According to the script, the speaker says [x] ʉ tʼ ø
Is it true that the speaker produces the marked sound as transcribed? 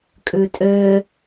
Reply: no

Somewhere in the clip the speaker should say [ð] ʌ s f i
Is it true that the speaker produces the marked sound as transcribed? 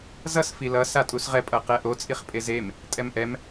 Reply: no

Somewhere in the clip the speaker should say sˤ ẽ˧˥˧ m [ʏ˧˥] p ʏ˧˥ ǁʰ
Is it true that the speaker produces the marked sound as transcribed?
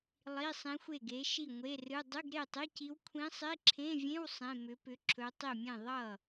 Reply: yes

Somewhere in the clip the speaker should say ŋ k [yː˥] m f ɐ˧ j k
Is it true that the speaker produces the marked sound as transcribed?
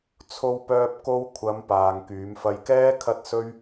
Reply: no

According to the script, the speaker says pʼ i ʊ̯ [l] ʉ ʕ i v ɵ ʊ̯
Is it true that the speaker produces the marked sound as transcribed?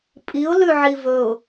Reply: yes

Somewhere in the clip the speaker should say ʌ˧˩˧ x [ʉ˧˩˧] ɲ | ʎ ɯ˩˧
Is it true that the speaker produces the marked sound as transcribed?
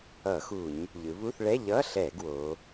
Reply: no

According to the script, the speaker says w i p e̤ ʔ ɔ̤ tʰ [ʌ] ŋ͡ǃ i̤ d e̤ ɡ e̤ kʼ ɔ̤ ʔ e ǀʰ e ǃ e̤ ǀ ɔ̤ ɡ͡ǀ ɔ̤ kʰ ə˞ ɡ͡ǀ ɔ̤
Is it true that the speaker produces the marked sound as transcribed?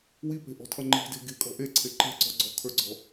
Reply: yes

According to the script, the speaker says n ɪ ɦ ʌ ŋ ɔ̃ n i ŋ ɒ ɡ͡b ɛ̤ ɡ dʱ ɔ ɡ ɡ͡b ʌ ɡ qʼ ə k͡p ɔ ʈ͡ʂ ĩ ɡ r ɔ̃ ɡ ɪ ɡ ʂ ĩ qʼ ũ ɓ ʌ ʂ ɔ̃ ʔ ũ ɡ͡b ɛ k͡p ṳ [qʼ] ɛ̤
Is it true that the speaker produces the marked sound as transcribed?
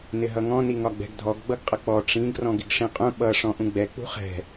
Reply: no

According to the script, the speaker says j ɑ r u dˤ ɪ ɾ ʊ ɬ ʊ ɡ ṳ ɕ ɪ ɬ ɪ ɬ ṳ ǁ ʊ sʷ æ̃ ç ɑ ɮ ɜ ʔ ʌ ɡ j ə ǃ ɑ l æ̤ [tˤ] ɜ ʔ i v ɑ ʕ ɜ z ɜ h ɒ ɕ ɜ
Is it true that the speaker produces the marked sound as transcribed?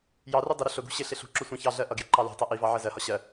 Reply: yes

